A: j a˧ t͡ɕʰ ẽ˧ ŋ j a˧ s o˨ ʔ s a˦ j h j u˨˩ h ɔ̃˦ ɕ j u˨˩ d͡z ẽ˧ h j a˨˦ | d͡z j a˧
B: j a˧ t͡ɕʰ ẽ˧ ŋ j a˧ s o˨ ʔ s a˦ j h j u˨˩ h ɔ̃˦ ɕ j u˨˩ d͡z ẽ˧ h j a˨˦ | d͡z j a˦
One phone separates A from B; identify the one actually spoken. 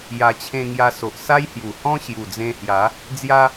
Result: B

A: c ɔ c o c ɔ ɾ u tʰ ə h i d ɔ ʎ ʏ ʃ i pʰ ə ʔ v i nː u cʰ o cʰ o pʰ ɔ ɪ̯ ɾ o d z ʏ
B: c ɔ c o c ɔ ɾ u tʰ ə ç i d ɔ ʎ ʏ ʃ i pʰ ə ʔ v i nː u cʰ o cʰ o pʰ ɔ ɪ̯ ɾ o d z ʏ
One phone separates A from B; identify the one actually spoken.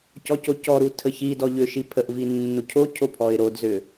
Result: B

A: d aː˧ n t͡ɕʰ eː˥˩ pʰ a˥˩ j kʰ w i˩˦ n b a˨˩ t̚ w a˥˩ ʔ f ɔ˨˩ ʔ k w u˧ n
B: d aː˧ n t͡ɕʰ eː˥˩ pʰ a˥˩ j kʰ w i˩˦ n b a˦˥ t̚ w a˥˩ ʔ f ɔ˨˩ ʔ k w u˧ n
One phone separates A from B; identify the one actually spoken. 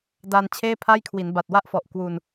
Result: A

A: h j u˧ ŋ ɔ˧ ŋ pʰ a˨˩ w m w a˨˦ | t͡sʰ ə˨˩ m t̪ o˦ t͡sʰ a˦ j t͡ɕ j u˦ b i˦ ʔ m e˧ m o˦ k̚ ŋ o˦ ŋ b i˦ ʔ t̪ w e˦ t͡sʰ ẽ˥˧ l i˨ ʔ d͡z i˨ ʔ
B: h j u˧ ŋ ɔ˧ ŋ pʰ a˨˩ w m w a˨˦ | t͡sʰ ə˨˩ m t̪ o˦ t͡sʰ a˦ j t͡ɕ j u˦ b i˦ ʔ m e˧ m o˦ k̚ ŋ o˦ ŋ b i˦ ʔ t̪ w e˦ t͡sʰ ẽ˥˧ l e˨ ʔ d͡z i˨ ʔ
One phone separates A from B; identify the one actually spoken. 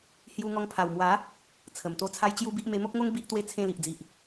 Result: A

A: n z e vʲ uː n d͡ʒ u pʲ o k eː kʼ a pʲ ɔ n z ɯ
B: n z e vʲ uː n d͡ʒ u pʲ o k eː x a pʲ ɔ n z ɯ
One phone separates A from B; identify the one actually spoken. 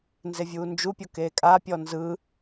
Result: A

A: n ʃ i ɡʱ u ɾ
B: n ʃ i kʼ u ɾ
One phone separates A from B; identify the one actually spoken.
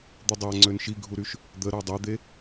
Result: A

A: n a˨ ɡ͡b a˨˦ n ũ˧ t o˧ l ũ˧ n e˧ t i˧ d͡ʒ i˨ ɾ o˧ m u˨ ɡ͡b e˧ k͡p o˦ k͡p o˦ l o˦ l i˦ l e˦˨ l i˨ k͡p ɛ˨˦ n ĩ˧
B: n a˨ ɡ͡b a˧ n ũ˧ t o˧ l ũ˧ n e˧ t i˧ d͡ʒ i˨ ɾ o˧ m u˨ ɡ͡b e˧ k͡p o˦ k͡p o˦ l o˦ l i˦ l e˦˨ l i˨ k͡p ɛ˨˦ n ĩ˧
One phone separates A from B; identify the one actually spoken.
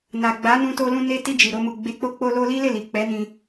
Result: A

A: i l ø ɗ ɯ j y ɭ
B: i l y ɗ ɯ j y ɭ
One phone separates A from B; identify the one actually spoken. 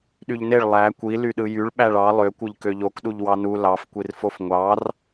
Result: B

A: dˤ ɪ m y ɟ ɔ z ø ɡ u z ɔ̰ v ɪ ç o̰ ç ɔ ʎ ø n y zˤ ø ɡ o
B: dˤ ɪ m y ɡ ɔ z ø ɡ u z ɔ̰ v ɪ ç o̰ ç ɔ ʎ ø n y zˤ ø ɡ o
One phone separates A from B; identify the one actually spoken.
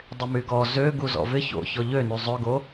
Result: B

